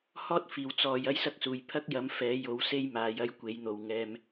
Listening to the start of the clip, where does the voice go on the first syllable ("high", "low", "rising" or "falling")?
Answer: high